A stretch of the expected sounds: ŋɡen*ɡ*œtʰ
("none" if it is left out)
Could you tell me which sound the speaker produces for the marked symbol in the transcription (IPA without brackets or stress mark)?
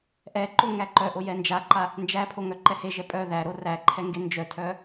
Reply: d͡ʒ